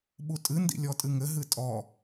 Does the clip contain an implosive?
yes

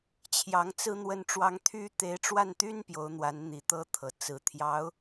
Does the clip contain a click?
no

